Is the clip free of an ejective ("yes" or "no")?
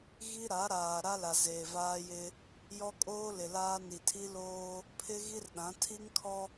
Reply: no